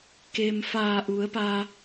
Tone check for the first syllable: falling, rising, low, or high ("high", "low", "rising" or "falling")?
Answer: low